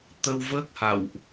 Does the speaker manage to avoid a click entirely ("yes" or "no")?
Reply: yes